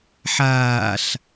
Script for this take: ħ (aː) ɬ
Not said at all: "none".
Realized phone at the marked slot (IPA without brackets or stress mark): aː